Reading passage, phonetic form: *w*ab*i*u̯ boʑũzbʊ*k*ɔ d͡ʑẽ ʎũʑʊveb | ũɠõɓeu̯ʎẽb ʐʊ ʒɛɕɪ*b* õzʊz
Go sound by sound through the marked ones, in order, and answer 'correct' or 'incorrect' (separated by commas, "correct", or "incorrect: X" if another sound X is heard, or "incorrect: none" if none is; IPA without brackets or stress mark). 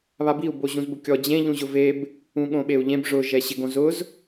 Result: incorrect: β, correct, incorrect: kʲ, incorrect: ɡ